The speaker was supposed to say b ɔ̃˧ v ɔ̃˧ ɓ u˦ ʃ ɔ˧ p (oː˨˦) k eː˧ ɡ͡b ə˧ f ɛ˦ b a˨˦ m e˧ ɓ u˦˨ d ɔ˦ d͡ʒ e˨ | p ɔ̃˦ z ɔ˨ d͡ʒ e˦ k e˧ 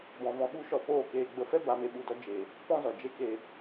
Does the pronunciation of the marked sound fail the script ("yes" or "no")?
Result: yes